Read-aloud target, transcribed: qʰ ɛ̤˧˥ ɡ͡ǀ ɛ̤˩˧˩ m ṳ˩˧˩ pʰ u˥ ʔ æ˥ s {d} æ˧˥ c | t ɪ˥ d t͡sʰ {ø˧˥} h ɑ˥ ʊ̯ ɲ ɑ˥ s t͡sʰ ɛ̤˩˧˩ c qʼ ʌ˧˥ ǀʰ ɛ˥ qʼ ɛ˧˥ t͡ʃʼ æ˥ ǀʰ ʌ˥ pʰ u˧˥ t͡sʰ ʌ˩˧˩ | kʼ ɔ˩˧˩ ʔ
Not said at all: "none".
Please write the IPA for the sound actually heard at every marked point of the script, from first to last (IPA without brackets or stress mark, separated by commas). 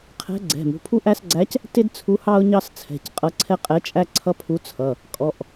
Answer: ɡ͡ǀ, u˧˥